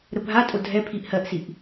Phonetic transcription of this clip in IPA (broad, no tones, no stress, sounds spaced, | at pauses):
ɾ ə bʱ a tʼ o dʱ ɛ pʰ i ʔ h ɜ ʔ s i ʔ